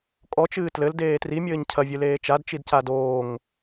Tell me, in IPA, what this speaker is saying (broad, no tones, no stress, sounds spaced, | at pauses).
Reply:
kʼ ɔ t͡ʃ ɨː t l ɘ l d eː t r i mʲ ɘː ɲ cʰ ɐ vʲ ɨ l eː t͡ʃ a d t͡ʃ i d c a d oː ŋ